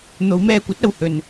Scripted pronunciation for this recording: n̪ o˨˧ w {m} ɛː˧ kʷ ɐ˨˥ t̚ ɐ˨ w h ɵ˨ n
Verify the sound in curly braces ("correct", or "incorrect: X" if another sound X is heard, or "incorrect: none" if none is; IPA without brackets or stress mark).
correct